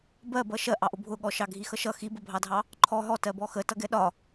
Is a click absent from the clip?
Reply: no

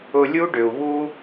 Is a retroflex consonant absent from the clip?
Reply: no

